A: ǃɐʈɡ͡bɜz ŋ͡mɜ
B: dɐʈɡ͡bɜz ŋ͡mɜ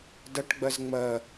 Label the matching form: B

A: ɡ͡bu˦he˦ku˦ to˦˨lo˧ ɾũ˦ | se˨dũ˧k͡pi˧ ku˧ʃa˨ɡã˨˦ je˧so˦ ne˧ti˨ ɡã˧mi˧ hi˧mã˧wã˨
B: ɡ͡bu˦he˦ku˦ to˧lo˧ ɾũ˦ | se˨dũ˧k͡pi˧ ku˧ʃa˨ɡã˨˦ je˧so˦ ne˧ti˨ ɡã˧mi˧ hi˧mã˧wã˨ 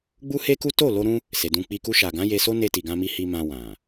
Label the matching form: A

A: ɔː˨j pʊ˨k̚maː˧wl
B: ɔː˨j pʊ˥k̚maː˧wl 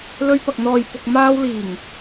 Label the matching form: A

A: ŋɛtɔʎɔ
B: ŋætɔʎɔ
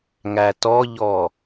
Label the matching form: B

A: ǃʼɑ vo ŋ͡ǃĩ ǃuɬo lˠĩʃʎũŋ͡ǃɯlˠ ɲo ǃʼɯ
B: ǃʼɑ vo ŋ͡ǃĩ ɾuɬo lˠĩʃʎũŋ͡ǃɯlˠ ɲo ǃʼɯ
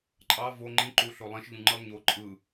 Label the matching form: A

